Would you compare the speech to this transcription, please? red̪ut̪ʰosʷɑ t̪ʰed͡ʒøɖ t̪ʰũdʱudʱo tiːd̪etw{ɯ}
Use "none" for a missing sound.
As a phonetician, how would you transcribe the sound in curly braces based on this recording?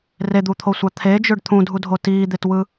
ɯ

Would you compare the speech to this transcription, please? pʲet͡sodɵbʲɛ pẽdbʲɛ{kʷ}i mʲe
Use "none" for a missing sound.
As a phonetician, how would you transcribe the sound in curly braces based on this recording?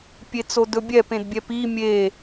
p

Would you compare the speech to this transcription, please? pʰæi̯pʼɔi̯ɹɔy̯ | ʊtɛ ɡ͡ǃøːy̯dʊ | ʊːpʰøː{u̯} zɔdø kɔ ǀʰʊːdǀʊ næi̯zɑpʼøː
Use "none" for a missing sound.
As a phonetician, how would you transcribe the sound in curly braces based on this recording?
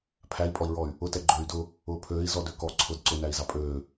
i̯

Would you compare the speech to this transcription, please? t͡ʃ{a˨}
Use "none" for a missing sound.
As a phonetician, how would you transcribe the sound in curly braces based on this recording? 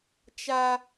a˦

